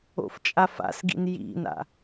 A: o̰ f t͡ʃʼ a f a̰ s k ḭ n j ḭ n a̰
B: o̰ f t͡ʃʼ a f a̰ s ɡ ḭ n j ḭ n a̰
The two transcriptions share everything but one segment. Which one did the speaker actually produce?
B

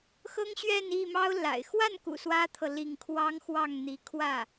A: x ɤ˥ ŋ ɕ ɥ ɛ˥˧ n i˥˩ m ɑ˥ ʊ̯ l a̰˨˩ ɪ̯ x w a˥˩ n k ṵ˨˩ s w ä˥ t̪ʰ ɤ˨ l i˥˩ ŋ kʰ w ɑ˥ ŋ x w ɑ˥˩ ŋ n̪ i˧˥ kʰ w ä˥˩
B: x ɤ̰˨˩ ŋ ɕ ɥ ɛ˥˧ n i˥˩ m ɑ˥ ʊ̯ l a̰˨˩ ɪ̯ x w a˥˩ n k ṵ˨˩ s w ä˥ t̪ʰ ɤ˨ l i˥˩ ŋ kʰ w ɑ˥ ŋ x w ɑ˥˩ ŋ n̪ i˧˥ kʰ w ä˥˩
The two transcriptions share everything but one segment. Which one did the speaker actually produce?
A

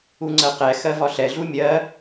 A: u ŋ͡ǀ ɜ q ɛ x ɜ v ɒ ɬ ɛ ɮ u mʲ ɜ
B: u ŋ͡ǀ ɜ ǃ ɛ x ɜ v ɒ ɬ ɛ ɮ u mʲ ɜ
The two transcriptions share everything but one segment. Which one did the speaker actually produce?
A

